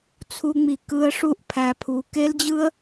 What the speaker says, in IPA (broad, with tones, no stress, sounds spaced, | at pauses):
t͡sʰ u˧ ŋ͡m i˨ k ɯ˧ ə̯ ʂ u˦˨ ʔ pʰ æ˨ pʰ u˨ k e˦ l d͡ʑ ɯ˦ ə̯